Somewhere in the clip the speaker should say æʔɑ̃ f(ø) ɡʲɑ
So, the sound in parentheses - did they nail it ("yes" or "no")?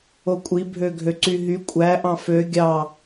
yes